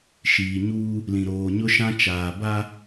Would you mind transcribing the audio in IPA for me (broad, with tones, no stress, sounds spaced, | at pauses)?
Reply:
ʃ iː˨ ɲ uː˦ | l ĩ˨ ɾ oː˨ ɲ ʊ˦ ʃ ã˦ t͡ʃ aː˨ b a˦